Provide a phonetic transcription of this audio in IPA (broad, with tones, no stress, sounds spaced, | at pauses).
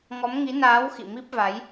ŋ ɔ˨˦ m ŋ i˨˦ n aː˨˦ w x ḭ˧˨ m i˦˥ p̚ v a˨˦ j